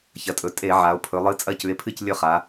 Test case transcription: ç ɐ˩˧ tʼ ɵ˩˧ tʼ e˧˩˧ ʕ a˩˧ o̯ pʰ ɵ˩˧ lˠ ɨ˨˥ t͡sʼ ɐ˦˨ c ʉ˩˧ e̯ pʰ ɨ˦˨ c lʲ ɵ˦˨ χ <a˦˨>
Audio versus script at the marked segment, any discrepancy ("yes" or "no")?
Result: yes